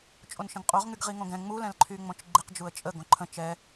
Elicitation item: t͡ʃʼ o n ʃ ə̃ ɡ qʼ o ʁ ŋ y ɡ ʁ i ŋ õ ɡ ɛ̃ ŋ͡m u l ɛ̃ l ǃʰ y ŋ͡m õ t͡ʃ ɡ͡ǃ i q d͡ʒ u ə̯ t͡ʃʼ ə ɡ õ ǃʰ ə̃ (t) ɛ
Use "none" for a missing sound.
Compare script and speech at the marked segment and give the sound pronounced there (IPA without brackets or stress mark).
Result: t͡ʃ